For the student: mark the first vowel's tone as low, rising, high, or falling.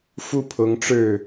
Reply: falling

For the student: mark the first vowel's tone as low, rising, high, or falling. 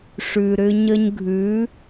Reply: low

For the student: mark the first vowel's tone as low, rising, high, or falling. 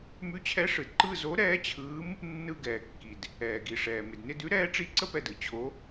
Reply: rising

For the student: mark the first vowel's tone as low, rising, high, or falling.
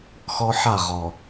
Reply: high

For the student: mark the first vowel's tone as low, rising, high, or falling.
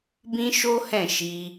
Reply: high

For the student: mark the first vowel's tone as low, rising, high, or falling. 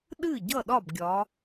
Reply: falling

